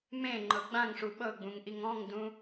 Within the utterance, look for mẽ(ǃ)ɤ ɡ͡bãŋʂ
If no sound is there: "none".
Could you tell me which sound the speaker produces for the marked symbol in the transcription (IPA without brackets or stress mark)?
ŋ͡ǃ